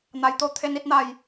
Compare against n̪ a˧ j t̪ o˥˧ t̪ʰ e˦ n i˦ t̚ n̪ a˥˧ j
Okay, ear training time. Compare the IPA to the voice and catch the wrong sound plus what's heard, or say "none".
none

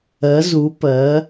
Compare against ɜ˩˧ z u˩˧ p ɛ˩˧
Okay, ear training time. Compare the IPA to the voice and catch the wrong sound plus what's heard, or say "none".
ɛ˩˧ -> ɜ˩˧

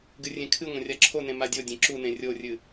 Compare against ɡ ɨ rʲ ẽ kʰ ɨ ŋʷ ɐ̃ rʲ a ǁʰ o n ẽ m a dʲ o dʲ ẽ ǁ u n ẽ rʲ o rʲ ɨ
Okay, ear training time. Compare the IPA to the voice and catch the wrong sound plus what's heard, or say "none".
none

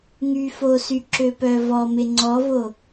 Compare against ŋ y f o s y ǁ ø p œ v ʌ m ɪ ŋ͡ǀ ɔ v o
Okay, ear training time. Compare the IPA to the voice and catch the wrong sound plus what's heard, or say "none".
ʌ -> ɔ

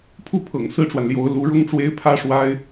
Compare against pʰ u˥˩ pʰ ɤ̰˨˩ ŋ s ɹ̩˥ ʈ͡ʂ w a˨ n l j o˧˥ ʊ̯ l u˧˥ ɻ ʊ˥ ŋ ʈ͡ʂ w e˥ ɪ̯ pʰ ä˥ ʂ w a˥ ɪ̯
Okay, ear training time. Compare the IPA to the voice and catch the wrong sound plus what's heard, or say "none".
none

